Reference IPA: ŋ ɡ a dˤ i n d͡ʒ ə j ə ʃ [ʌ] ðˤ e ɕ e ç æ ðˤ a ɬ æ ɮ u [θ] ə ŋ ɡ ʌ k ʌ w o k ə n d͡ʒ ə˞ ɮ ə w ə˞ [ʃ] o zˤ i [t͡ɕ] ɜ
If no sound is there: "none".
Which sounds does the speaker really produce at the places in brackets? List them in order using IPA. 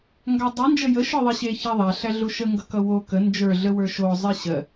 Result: ə˞, ʃ, ʃ, ɕ

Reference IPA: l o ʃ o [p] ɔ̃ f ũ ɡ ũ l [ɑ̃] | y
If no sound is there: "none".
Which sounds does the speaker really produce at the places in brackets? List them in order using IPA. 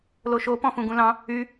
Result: p, ɑ̃

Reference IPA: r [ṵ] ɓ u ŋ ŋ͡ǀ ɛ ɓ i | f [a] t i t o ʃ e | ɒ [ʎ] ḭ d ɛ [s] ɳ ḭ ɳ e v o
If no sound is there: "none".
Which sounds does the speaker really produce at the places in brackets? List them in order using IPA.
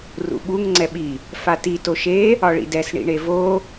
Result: ṵ, a, ɭ, s

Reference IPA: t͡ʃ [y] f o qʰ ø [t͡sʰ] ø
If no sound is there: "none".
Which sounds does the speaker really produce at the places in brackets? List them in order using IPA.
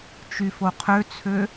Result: y, t͡sʰ

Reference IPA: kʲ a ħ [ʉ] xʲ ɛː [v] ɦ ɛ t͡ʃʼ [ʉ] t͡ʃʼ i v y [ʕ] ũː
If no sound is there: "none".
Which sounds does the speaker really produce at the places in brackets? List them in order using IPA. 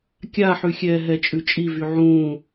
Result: ʉ, none, ʉ, ʕ

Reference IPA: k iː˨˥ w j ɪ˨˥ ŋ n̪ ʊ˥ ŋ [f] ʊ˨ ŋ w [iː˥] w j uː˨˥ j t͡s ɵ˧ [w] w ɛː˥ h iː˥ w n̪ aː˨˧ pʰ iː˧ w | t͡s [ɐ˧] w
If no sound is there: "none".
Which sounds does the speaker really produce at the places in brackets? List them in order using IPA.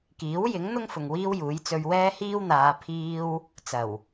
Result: f, iː˥, ɥ, ɐ˨˩

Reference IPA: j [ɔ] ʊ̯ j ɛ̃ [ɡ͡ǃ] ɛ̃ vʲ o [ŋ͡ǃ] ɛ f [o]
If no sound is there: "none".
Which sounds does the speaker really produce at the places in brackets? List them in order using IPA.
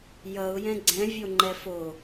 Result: ʌ, ɡ͡ǀ, ŋ͡ǃ, o

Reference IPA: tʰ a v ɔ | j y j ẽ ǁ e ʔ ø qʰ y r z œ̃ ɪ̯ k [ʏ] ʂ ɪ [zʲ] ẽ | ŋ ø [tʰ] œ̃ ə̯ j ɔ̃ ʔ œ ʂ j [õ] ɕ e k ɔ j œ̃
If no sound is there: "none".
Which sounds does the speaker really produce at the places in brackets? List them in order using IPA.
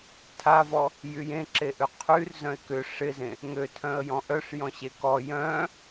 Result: ʏ, z, tʰ, ɔ̃

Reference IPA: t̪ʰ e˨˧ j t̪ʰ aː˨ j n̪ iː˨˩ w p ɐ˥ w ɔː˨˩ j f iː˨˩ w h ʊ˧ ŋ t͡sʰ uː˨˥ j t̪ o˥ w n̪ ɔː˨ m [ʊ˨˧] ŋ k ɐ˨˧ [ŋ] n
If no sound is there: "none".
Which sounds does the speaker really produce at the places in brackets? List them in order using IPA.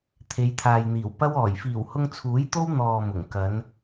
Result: ʊ˨˩, none

